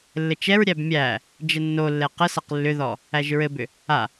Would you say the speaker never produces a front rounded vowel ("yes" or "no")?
no